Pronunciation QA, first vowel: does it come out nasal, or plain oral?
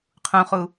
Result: nasal